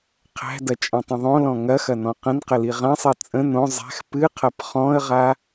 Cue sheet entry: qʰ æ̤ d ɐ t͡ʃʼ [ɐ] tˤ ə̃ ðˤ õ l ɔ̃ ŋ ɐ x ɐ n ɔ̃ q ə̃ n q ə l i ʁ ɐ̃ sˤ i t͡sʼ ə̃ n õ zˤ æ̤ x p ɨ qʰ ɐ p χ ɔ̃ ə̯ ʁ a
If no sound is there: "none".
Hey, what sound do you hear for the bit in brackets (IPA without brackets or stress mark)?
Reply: ɐ̃